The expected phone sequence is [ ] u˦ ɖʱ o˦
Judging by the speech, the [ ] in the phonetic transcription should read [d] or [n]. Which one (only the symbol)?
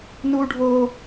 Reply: n